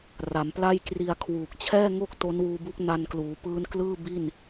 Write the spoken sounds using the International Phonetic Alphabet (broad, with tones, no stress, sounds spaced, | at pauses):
r a˩˦ m p l a˥˩ j k r i˧ a̯ kʰ w uː˨˩ k̚ t͡ɕʰ ɛː˥˩ ŋ o˥˩ k̚ t o˦˥ n w uː˧ b u˦˥ k̚ n a˧ n k l uː˩˦ p ɯː˦˥ n k l ɯː˥˩ b i˥˩ n